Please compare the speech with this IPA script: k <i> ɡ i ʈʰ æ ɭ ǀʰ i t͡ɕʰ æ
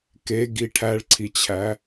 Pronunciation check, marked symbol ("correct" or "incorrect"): incorrect